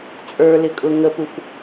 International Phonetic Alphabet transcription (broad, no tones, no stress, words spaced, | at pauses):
t͡sʼə˞lɪkʼʊ ŋəpuf